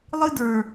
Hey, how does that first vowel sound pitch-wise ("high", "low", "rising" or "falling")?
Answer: high